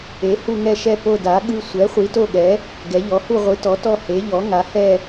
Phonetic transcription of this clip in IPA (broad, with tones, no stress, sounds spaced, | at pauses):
e˩˥ h u˦˨ ŋ ɛ˦˨ ʃ ɛ˦˨ p o˦˨ d a˩˥ ɠ ɯ˦˨ sʷ ɛ˩˥ χʷ i˩˥ t o˦˨ ɠ ɛ˩˥ | ɡ ɛ˩˥ ʎ ɔ˩˥ h u˦˨ ʁʷ ɯ˩˥ t ɔ˩˥ t ɔ˦˨ h e˩˥ ʎ ɔ˩˥ ŋ a˩˥ h ɛ˦˨